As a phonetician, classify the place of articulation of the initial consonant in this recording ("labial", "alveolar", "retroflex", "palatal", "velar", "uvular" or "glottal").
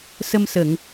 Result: alveolar